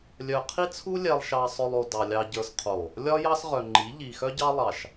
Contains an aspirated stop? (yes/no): yes